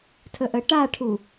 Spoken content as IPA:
tʰəʔəʈaʈʰu

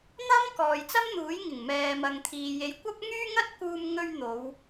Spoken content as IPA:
n̪ɐ˥m kɔː˨jt͡sɐ˥mn̪uː˨˥jŋɪ˨˩ŋ mɛː˨mɐ˨ŋt̪ʰiː˨ je˨˧jkʷɐ˥p̚ ŋyː˥ŋɐ˥t̚ kuː˧m ŋɵ˧ɥ n̪o˨˧w

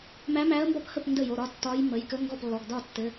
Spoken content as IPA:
mæ˧˥mæ˧˥ə̯mbɒ˥˩phə˥˩p ndə˥˩jo˩˧˩ɾɒ˥˩ tːɒ˧˥j mə˩˧˩jkə˧˥ŋɡɔ˥˩p lːɔ˩˧˩ɡdɒ˥˩tːɘ˩˧˩

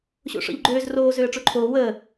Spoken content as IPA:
ɕo̰ʂɔ̰ʎɡ͡ǃøːz roː zøːə̯ʈ͡ʂoǃʰoː wəː

